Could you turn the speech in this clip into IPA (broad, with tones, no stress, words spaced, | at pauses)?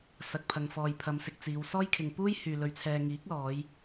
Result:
sɐ˨k̚pʰɐ˨ŋfɔː˨j pʰɐ˨˧msɪ˨k̚ t͡siː˨˧wsɔː˥j kʰɪ˨ŋpuː˥j hyː˨ lɵ˨˧ɥ t͡sʰɛː˨ŋiː˨˥k̚lɔː˨˧j